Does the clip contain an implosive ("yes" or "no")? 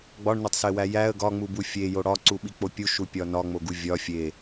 yes